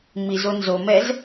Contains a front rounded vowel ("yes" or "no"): no